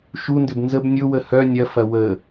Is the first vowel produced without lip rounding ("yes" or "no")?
no